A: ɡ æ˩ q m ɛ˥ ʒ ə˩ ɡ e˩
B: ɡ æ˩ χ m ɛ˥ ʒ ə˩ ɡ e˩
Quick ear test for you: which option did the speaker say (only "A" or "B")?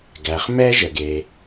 B